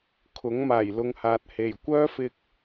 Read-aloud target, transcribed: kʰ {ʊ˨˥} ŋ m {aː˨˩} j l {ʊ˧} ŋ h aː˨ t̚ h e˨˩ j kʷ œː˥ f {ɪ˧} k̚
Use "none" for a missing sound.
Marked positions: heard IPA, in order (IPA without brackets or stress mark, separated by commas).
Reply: ʊ˨˥, aː˨˩, ʊ˧, ɪ˧